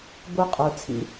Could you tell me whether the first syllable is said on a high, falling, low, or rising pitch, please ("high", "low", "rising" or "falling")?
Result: high